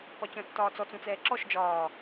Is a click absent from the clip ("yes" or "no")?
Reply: no